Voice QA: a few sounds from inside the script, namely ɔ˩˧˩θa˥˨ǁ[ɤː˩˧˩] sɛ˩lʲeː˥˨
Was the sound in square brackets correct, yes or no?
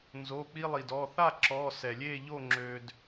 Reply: no